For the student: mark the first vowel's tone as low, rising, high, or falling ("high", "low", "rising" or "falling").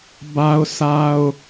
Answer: high